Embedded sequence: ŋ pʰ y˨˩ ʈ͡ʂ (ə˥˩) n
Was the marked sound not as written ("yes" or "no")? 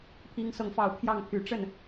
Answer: no